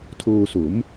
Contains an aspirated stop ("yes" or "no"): yes